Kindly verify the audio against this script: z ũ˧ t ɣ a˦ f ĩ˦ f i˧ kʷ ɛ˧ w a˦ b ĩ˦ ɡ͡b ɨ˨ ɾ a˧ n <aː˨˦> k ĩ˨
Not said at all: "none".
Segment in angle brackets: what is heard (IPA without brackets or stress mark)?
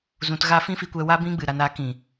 a˨˦